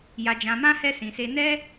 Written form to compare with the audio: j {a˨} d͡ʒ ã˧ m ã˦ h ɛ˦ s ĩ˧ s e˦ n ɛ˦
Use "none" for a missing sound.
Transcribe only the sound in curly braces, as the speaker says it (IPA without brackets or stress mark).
a˧